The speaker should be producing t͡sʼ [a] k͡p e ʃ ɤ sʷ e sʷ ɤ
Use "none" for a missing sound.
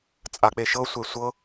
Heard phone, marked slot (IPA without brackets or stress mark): a